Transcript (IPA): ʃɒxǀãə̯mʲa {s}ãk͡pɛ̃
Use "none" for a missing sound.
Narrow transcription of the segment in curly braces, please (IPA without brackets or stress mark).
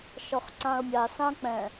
s